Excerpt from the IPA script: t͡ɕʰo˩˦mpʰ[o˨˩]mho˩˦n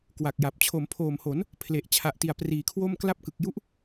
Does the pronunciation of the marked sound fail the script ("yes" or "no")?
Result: yes